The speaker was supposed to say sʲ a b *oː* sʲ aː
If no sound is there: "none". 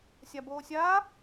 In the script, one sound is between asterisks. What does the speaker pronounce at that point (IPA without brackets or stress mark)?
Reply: oː